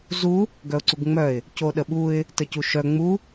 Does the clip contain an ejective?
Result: no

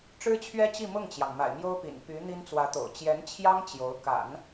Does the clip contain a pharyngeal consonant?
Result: no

